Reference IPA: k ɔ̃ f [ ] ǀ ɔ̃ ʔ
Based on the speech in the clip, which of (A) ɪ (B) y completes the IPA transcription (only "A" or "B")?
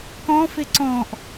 A